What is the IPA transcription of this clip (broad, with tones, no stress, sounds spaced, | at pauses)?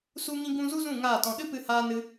s u˦ ŋ ĩ˦ ɡ ũ˦ z u˦ z ũ˦˨ ŋ aː˦˨ t ɔ̃˧ ɗ ɨ˦ p ɨ˧ h aː˧ n ɨ˧